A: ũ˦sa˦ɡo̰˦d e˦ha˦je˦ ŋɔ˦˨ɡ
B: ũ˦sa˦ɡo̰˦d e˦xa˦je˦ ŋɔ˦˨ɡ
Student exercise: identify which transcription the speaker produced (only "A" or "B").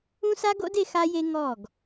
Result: B